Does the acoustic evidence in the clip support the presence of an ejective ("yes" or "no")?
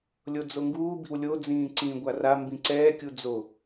no